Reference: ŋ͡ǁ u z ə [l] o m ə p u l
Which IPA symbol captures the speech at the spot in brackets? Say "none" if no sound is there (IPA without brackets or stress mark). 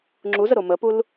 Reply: ɾ